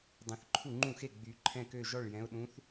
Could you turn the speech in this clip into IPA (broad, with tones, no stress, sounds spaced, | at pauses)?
dˤ ẽ˨˦ θ ǃʰ u˥˨ ŋ͡ǃ ũ˥˨ x e˥˨ ɡ͡b y˨˦ ǃʰ ɛ̃˥˨ k ø˥˨ ʒ ɔ˥˨ ɭ j ɛ̃˨˦ ʊ̯ ɗ ũ˨˦ θ